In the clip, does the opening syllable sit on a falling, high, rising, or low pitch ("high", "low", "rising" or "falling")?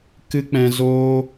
high